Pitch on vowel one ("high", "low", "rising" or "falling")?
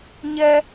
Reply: high